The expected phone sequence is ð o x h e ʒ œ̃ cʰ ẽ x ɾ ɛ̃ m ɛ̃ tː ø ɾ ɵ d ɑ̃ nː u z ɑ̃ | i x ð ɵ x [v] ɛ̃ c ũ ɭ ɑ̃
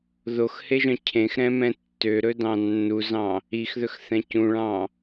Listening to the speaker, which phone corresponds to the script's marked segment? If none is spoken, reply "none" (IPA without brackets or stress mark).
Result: θ